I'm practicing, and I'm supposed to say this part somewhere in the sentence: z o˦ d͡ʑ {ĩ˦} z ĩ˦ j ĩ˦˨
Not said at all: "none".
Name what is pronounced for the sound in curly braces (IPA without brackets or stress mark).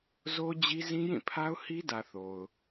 i˦